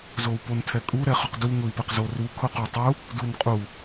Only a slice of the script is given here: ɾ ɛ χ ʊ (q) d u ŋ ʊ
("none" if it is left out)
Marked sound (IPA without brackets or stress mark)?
q